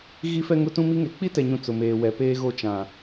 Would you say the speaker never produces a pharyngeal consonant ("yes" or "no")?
yes